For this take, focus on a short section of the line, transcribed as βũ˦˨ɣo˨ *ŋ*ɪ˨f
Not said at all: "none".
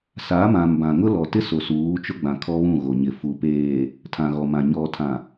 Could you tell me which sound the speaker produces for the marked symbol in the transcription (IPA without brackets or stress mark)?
ɲ